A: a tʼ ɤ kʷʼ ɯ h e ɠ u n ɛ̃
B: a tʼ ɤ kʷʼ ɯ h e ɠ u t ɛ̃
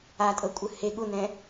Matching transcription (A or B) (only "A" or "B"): A